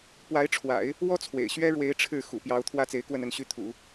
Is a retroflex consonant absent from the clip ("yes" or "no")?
no